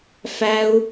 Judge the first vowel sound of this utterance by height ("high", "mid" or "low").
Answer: low